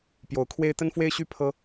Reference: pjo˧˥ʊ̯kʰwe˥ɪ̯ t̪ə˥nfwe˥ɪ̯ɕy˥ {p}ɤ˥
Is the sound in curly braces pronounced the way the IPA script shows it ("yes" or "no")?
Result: no